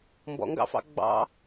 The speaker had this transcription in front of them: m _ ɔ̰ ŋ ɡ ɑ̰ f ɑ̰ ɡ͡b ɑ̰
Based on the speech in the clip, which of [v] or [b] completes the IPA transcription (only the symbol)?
b